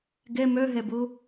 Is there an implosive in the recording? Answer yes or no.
no